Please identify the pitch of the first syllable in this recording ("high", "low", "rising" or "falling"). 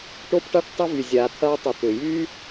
high